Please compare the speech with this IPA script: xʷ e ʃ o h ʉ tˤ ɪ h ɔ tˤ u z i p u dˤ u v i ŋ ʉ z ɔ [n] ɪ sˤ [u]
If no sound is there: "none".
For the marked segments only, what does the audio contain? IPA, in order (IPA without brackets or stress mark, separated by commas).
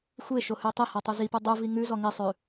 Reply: ŋ, ʉ